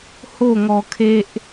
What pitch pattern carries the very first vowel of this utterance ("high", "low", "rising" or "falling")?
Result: falling